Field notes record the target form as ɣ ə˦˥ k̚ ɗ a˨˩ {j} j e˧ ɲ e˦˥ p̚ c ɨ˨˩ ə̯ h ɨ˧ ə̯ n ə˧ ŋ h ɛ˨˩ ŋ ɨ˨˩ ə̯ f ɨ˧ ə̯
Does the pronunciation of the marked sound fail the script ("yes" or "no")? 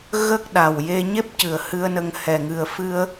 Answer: yes